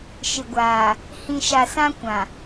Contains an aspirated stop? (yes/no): no